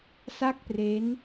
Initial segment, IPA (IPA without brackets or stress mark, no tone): s